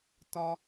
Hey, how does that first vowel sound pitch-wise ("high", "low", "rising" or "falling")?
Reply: high